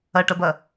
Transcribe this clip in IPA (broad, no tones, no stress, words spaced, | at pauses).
ɐʈɐbɐ